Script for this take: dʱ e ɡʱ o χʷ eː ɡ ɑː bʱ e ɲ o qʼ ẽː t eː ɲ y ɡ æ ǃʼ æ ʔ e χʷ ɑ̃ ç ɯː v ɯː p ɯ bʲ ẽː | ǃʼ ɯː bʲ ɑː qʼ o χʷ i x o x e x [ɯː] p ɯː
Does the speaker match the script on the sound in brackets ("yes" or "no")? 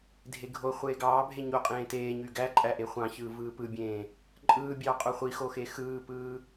yes